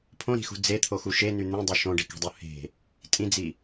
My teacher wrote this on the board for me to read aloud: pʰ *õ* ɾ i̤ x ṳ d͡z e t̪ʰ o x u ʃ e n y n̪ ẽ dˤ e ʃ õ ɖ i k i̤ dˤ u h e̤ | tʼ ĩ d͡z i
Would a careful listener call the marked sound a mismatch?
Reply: no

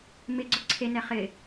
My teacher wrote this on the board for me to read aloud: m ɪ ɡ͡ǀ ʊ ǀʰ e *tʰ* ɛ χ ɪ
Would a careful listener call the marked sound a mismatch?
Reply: yes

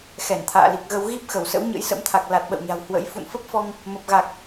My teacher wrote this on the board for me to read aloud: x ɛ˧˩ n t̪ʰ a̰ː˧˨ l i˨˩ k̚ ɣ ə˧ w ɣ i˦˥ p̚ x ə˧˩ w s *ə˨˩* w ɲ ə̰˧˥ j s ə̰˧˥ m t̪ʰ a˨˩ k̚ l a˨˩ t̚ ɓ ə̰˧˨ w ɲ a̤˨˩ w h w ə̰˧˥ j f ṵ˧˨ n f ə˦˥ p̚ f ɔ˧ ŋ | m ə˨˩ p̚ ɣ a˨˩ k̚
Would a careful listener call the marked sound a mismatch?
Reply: yes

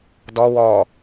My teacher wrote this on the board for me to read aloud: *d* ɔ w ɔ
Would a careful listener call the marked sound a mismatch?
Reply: no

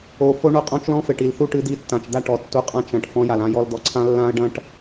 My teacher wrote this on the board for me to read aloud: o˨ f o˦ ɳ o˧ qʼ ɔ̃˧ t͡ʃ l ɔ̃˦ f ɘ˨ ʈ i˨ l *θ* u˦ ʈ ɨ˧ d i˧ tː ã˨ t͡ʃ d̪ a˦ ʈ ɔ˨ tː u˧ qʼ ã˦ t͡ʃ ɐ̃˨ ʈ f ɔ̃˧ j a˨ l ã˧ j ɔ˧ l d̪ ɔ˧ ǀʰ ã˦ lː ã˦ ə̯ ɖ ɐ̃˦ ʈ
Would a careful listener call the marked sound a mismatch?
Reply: no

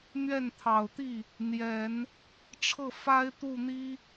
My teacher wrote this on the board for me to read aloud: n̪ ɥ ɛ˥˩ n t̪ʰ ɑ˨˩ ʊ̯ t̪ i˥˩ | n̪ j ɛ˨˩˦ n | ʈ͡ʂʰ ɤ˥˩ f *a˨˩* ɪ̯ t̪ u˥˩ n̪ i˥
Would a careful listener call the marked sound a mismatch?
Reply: yes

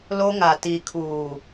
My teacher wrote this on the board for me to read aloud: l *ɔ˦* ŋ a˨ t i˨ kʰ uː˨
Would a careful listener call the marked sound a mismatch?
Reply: yes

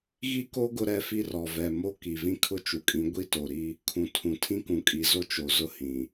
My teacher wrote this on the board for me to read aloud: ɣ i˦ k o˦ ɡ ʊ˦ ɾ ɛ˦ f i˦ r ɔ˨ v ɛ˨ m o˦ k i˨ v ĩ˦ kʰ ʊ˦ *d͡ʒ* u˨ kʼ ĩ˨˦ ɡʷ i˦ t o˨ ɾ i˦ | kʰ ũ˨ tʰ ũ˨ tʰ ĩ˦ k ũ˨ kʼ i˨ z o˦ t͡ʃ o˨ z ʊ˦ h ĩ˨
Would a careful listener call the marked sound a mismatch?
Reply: yes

